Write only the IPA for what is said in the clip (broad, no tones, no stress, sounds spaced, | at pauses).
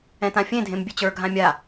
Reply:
ɛ̃ t ã fʲ ẽ dʱ ẽ m bʲ e t͡ɕ ə˞ ɡʱ ã mʲ a